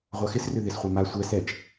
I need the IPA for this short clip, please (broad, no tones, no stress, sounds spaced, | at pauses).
ʁʷ a x ɪ s r ʏ ð ɪ s χʷ a m a sʷ ɛ s ɛ t͡ʃ